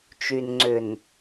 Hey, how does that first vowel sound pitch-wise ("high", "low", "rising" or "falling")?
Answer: low